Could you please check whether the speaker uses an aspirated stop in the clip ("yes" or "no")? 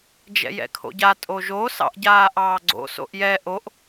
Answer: yes